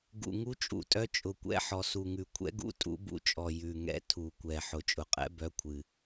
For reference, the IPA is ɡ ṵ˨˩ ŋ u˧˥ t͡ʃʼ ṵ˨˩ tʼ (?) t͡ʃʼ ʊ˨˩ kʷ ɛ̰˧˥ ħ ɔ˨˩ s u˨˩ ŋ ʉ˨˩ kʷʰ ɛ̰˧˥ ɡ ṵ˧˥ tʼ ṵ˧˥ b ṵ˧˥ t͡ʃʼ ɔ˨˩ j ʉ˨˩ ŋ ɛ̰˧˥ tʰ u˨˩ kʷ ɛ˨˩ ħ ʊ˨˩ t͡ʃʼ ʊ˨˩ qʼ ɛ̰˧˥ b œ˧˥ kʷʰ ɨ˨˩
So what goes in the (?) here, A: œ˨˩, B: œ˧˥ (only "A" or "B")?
B